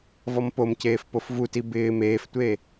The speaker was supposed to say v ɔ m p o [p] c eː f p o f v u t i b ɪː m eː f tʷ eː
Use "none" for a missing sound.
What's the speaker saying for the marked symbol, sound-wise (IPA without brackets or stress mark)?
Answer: m